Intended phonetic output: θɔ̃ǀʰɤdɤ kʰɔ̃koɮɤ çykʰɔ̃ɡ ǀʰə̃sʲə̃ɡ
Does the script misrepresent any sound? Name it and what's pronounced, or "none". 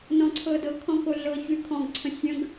θ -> n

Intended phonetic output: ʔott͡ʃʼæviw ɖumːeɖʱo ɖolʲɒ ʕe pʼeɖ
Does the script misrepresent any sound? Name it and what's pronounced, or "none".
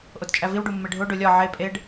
none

